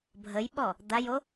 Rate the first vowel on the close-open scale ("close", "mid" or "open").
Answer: mid